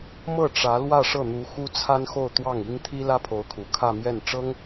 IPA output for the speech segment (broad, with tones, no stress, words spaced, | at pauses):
mɤ˥˩ʈ͡ʂä˧˥ lwä˥˧ʂɤ˥˩n̪u˧˥ xu˥ t͡sʰa˥nxo˥˧ʊ̯t̪wɑ˥˩ŋi˥ŋ t̪ʰi˥ lä˥pʰo˧˥ʊ̯kʰu˨˩ kʰä˥˧mjɛ˥˩n ʈ͡ʂɤ˥ŋ